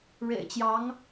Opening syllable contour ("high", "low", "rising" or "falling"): low